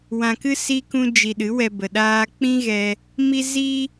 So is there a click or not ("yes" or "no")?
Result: no